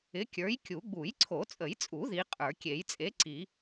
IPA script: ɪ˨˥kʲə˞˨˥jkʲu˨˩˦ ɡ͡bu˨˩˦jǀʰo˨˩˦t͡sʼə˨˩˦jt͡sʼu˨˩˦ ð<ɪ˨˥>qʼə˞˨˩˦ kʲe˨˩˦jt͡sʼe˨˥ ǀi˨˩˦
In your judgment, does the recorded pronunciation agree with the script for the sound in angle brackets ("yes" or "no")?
no